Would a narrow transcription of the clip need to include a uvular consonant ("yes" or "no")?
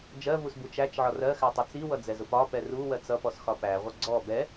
yes